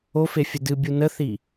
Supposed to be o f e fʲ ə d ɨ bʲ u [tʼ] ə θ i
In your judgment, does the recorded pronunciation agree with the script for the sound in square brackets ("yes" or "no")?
no